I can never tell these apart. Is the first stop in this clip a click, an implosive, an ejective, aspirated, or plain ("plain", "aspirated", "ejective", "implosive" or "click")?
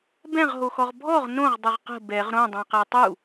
plain